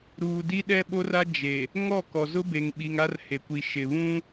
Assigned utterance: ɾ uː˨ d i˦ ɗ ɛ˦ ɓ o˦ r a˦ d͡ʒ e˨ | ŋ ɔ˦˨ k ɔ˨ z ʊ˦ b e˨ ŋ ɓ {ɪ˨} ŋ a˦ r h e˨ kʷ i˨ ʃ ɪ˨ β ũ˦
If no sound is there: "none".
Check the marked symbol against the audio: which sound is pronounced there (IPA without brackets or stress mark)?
i˨